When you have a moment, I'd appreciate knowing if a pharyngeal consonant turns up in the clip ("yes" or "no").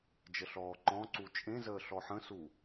yes